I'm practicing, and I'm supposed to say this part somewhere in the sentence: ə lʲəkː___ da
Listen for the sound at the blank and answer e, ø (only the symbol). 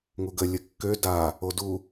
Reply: ø